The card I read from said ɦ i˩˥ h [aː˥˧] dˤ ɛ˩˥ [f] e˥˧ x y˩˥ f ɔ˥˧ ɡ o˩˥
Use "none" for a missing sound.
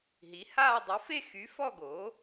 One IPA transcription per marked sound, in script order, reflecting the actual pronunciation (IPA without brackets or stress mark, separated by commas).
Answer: aː˥˧, f